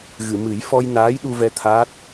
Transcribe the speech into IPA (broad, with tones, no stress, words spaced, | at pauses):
ɣɨ˨˩˨mɨ˨˩˦j fɔ˧j naː˧˥j ɗu˧vɛ˧ t̪ʰaː˦˥t̚